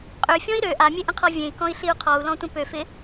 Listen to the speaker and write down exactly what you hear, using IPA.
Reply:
qʼøfʲɔ̃i̯ ɾø ʔamʲeʔə̃qʰɔ vʲẽi̯kɔ̃i̯ɬiu̯ qʰɔu̯lɔ̃tʷə̃ pøfɪ

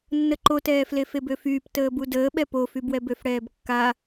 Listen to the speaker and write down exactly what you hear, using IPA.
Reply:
nːəǃotɛː flefebøfyːp təːbudəː ɓɛpofy bwɛbøfɽɛːbkːa

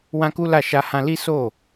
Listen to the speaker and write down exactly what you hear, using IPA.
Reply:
wã˦ku˦la˦˨ ʃa˧hã˧ li˦so˦˨

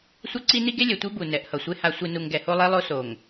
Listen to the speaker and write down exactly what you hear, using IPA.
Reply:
sʷʌ˦ǀi˦ni˦ ɡe˦lʲɛ˨tʷi˦ bu˨ nɛ˨ʔhʌ˨sʷe˦ ha˨sʷi˨nu˨ŋ ɡɛ˨ho˦lˠe˦lˠo˦ so˨ŋ

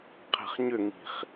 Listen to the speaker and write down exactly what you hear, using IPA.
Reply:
qʰɛ̤χɲʏŋi̤χ

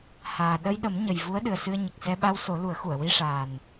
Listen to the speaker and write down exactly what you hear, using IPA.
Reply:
haː˨˩ ɗə˧jɗə˨˩˦mɲə˨˩j vu˧˥ə̯ɗɨ˨˩ə̯sɨ˧ə̯ɲə˨˩k̚ sɛ˧ɓa˧wso˨˩˦ lu˨˩˦ə̯xu˨˩˨ə̯wi˧ʂaː˨˩n

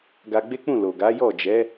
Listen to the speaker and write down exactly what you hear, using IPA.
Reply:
ɡa˧ɡ͡be˦k͡pũ˦˨ lo˨ɡa˨˦jɔ˦˨ d͡ʒɛ˨˦

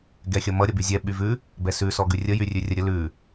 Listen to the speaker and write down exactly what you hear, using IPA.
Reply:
ɡɛxʲʌmʌ ɾʲʌbyzʲɛ ɓyvʉ | bɛsʉ sɔɡʉrʲə jyrʲʉrʲəɾʲə lʉ

